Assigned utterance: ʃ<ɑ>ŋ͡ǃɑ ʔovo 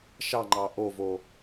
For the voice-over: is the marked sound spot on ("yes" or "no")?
yes